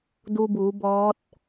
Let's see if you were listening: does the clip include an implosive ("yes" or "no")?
no